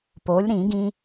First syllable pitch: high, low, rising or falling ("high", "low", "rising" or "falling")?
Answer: rising